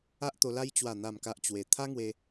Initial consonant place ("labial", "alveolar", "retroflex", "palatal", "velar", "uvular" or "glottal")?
glottal